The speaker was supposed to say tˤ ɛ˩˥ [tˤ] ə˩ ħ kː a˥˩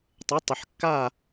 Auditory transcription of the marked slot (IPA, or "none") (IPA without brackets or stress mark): tˤ